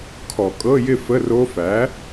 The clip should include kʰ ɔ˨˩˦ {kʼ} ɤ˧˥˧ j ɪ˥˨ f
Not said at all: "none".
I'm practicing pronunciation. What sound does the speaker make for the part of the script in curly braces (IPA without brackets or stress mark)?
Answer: kʼ